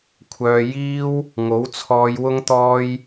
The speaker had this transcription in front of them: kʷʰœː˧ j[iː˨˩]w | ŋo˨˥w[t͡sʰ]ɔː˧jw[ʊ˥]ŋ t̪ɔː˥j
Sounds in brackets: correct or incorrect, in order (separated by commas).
incorrect, correct, correct